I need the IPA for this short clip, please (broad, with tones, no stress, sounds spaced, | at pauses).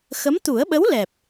x ə˧˥ m t̪ u˨˩˦ ə̯ ɓ ə˧˥ w l ɛ˨˩ p̚